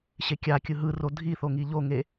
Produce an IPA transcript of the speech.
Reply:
ɕ e kʲ a kʲ ɯ ɦ ɯ r o dʱ i θ o ŋ i ʎ o ŋ e

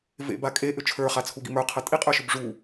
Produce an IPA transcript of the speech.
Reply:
v ḛ b a kʼ e ʔ ʏ t͡ʃʰ ə˞ χ a t͡sʰ u ɡ ḭ m ə˞ qʰ ɤ tʼ i qʼ ə˞ ʃ ʏ b ʐ u

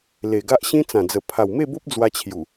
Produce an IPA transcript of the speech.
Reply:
l e˨˩ ɡ a˦ ʔ ɕ ĩ˦ t͡s ã˨˩ d͡z ə˨˩ pʰ a˨˩ w m e˥˧ b o˦ p̚ d͡z w a˧ t͡ɕʰ j u˨˩

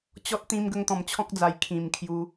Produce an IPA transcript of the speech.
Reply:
t͡ɕ ɔ˦ t̚ t̪ ĩ˧ m ɡ ə˧ ŋ t̪ ɔ̃˨˩ m t͡ɕʰ ɔ̃˦ k̚ d͡z a˨˩ j kʰ ĩ˨˩ m kʰ j u˧

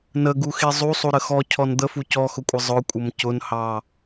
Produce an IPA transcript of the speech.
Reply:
n ə ɡ u x i zˤ u sˤ u ɾ ə x ɔ cʰ ɔ n d̪ ə f u c ɔ x ʊ kʷʼ ə zˤ ʊ kʷʼ ə m c ʊ n h ɑ

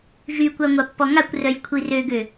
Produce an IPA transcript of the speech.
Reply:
ʒ y kʷ a ŋʷ a pː ɔ ŋ a kʷ r œ j kʷʰ i r ø ɡ ø

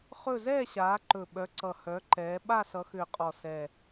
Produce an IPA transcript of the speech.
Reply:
χ ɵ˥˧ z ɛː˥˧ ɕ aː˨˦ ǃ ɵ˨˩ ɓ œ˨˦ ǀ ʌ˨˩ h œ˨˦ ǃ ɛː˨˦ ɓ a˥˧ s ʌ˨˦ x ʏː˨˩ qʼ ɔ˨˩ s ɛ˨˩

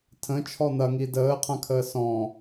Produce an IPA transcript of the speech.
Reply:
tʰ ə̃ t͡ʃʰ ɔ n̪ ɐ ŋ i d əː qʰ ã kʰ əː s ɔ̃

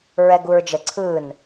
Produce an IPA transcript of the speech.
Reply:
ɹ ɛ ɡ u ɹ d͡ʒ ə ǀʰ ɯ n

